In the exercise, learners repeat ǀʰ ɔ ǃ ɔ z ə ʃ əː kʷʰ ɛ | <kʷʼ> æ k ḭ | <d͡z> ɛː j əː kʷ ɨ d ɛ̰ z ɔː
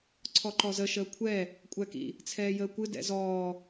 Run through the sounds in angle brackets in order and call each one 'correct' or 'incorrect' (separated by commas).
correct, incorrect